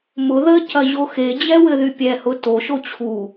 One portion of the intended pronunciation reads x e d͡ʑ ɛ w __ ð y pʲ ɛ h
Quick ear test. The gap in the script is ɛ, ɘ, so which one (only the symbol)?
ɘ